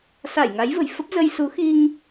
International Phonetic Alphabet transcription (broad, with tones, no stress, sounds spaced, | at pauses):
s a˧˩ j ŋ a˨˦ j v ə̤˨˩ j f ə˦˥ p̚ z ə˧ j s u˨˦ x i˧ ŋ